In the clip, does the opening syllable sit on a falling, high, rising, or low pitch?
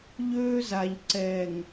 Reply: high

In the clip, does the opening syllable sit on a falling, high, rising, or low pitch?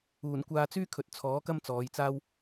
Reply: low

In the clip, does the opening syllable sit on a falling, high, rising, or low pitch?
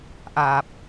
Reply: low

